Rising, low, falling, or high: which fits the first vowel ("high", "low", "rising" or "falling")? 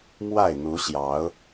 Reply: falling